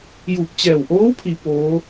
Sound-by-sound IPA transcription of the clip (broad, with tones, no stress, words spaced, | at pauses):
juː˧˩p̚t͡ɕɛː˧˩w ʔoː˧˥wpʰi˩ poː˧˥